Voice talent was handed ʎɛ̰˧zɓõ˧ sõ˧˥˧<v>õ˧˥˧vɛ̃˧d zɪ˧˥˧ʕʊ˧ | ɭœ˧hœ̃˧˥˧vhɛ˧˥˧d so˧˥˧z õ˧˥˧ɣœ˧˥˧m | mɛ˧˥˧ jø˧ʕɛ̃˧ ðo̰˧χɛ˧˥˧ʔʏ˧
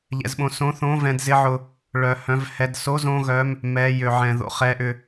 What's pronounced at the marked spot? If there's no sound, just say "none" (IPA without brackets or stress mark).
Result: θ